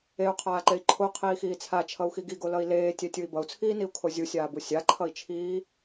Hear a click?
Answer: yes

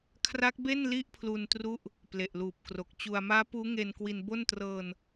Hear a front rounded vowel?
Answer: no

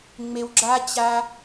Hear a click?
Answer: yes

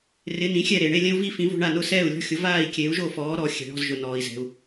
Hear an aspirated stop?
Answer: no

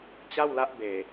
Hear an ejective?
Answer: no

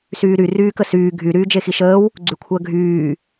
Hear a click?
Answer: yes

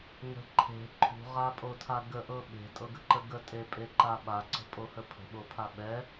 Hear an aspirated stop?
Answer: yes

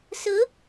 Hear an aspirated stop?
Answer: no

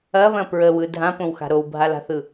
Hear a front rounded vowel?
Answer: no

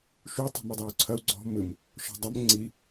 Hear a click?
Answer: yes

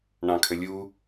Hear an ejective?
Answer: no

